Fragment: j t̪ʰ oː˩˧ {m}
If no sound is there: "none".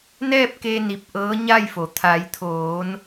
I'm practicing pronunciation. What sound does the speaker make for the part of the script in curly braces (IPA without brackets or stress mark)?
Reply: n